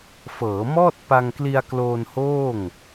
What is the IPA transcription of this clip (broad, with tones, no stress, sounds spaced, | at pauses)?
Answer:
f ɤː˩˦ m ɔː˥˩ t̚ p a˧ ŋ k l i˧ a̯ k l oː˧ n h oː˥˩ ŋ